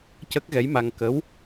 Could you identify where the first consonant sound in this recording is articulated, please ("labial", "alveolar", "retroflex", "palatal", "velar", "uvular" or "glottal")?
palatal